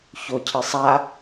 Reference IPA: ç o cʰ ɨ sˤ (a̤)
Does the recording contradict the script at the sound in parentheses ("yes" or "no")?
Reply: yes